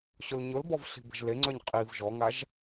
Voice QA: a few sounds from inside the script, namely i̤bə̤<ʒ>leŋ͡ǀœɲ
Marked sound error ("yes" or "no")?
no